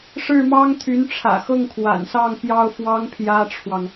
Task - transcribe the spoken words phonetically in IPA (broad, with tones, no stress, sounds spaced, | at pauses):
ʂ ɻ̩˥˩ m ɑ˥ ŋ t̪ʰ y˧˥ n ʈ͡ʂʰ ä̰˨˩ x ɤ˥˩ ŋ kʰ w a̰˨˩ n s ɑ˥˩ ŋ p j ɑ˥ ʊ̯ f w ɑ˥ ŋ pʰ j ä˥ ʈ͡ʂʰ w ɑ˨ ŋ